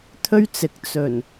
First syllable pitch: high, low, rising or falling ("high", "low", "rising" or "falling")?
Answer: high